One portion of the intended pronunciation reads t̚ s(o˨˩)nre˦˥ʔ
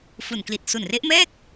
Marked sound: incorrect: u˨˩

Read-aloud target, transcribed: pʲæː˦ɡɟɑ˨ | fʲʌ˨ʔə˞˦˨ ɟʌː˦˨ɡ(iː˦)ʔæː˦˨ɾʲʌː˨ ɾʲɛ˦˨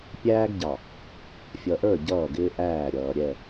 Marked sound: incorrect: ɪː˦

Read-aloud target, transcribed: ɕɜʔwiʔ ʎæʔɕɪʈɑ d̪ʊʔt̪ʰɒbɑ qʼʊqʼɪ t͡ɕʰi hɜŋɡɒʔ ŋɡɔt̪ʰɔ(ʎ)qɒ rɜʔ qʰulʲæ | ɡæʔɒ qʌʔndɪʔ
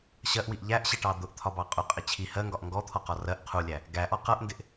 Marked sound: incorrect: none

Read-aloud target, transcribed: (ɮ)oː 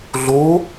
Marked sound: correct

